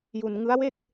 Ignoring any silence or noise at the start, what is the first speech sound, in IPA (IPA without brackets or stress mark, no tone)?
j